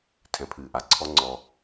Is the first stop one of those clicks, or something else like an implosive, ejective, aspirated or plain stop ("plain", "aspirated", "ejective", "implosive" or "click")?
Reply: aspirated